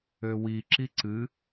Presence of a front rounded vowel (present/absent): present